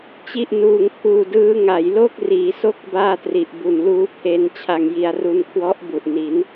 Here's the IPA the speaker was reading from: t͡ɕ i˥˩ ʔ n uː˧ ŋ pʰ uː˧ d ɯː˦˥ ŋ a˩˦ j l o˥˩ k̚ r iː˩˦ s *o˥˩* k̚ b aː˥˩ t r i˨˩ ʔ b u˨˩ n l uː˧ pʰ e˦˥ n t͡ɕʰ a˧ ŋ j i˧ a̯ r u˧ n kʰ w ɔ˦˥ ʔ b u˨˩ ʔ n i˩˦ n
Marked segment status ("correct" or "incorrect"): correct